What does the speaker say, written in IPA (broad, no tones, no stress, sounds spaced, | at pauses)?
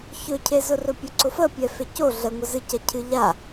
ç ɵ cʰ e z ʊ r ɵ pʲ ɵ ǀ ʊ f ə pʲ ɛ f e c o ɮ ə ŋʷ ə z ɨ c ɐ cʰ ɨ ʎ a